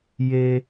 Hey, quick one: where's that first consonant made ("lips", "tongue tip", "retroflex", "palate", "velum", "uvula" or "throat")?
palate